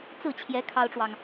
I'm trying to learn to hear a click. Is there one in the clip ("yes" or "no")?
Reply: no